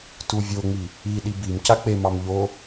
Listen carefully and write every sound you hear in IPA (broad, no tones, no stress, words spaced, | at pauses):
tuvʲoŋ͡mi | i ɗibimca k͡pemɑm ʎo